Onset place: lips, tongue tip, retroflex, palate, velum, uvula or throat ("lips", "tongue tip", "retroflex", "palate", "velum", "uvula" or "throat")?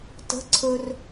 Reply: tongue tip